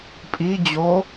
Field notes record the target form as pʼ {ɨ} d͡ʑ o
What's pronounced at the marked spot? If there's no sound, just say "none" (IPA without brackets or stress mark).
i